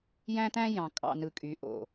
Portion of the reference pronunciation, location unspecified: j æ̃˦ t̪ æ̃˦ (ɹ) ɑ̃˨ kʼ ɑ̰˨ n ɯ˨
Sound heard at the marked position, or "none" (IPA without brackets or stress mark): j